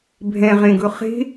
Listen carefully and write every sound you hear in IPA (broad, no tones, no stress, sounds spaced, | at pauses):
bʱ ɛ̃ ʁ ẽ ɡ ɵ χ e̤